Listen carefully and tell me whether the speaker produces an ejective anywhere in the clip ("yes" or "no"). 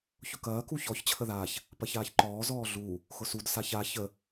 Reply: no